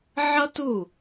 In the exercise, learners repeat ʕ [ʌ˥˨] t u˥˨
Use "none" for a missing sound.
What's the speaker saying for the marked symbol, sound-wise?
ʌ˥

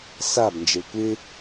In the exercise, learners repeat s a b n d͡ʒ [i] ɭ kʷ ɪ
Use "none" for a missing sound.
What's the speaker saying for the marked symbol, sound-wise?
i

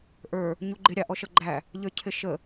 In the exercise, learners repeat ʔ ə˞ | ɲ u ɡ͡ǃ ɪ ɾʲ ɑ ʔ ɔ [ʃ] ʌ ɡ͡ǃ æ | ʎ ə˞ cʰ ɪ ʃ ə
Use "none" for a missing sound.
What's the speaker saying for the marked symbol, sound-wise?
ʃ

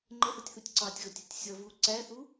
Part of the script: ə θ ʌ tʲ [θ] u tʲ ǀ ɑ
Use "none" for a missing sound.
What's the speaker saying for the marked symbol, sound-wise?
θ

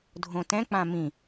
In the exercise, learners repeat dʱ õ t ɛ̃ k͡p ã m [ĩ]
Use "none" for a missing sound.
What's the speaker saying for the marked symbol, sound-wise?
ĩ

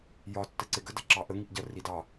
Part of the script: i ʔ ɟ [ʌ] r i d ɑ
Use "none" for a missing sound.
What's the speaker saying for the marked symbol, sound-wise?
ʌ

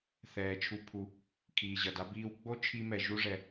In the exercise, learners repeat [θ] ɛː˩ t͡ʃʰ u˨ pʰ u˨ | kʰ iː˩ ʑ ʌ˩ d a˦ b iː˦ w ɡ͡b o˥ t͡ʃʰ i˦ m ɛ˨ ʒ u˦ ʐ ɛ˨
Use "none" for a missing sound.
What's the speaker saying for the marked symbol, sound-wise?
θ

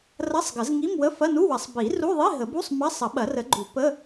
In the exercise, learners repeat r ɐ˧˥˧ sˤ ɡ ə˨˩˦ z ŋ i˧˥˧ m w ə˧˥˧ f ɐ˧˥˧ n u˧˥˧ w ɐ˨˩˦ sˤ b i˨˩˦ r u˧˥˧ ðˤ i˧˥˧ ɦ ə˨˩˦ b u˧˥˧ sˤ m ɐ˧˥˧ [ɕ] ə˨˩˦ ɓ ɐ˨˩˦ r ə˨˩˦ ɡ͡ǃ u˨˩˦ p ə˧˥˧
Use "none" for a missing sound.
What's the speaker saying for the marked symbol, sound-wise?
sˤ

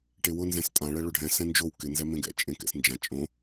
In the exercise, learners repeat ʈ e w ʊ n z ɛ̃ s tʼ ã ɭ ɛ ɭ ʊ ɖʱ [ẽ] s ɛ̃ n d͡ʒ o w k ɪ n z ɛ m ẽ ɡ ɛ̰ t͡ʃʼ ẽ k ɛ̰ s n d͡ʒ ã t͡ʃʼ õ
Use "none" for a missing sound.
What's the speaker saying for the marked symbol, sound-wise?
ɛ̃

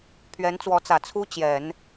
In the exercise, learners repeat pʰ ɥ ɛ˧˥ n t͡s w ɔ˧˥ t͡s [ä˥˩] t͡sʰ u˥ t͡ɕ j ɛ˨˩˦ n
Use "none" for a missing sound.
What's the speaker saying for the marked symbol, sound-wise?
ä˨˩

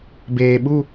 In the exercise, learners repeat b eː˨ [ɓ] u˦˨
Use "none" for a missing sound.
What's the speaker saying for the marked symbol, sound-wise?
ɓ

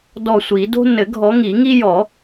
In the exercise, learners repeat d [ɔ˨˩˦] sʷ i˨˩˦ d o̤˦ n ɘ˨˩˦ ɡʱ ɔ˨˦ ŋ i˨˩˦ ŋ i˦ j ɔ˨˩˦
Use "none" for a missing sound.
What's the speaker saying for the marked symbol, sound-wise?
ɔ˧˩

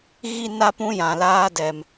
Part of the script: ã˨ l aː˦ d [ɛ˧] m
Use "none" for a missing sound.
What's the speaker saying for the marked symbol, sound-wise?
ɛ˧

